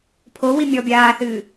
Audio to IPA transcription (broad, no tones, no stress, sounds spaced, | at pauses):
pʰ o w i mʲ ɔ bʲ aː θ ɨː